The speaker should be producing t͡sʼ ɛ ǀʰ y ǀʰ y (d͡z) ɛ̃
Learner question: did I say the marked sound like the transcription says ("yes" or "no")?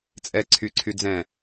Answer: yes